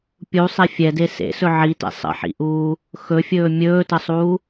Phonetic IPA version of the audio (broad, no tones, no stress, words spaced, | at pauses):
pʲusˤɛ fʲɛde sḛsɵ ʕitɛ̰ sˤə̰ħḭʔuː | xɵfʲɵː mʲɵːtəsˤuː